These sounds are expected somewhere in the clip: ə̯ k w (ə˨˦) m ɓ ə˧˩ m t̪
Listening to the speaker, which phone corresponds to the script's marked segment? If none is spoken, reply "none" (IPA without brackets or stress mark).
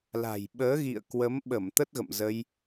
ə˨˦